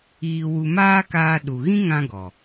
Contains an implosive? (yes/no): yes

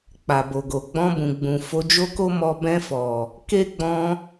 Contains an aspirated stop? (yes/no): no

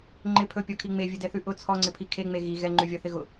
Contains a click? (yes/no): yes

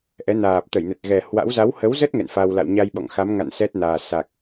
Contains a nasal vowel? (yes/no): no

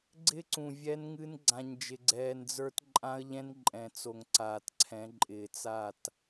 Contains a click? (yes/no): yes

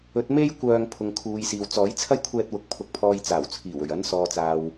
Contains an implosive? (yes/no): no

